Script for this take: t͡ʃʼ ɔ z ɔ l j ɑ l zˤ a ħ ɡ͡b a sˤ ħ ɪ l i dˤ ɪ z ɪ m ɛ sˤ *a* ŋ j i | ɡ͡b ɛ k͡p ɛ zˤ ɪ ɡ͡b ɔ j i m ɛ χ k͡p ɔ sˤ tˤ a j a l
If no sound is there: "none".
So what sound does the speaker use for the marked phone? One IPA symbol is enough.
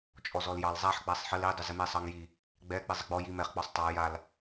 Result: ɑ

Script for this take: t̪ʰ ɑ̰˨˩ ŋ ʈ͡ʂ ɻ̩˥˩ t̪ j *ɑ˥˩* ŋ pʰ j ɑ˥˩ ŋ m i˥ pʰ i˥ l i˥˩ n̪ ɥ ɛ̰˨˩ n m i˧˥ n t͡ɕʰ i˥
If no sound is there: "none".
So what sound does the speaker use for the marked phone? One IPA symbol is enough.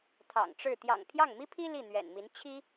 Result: ɑ̰˨˩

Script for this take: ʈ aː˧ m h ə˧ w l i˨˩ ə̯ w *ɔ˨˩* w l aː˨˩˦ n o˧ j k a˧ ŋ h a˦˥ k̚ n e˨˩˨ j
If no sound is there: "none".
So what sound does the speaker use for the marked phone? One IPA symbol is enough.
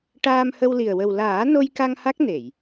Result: ə˨˩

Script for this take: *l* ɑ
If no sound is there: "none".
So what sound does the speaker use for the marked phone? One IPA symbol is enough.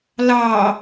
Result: l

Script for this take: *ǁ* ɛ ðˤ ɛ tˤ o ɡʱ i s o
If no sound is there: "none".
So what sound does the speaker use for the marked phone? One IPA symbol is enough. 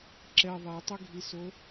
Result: ǁ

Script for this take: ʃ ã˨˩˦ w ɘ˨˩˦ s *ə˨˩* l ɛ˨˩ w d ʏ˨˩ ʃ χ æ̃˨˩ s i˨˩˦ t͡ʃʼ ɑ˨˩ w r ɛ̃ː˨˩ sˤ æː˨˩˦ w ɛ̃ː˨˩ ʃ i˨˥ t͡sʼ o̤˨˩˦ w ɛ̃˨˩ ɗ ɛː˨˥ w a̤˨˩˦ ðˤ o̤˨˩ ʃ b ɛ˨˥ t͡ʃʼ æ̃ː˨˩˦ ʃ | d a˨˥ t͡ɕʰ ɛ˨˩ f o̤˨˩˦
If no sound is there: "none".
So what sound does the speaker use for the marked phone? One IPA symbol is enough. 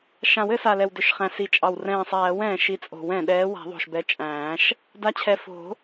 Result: a˨˩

